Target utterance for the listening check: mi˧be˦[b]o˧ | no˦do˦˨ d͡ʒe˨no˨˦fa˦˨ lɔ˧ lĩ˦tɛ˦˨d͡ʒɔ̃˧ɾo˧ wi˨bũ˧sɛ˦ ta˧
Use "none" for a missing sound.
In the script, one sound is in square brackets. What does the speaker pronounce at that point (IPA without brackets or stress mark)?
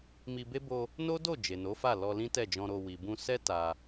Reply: b